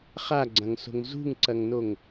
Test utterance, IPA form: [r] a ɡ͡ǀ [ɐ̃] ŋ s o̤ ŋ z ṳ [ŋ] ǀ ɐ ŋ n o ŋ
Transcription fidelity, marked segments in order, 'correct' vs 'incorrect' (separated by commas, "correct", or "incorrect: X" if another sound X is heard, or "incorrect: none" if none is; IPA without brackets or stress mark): incorrect: χ, correct, correct